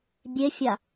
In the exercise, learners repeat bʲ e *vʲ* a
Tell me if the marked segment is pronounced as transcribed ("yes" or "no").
no